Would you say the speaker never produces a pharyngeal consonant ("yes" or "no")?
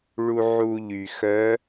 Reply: no